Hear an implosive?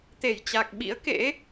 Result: yes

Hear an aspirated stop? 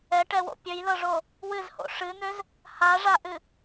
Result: no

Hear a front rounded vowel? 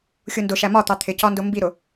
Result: no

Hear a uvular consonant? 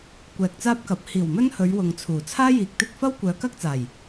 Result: no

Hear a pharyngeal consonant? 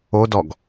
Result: no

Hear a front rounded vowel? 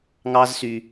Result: yes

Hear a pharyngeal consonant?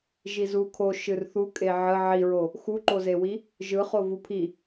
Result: yes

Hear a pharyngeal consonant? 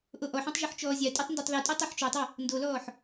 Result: yes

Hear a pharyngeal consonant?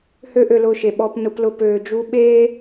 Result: no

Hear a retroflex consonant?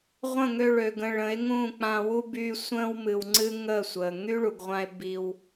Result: yes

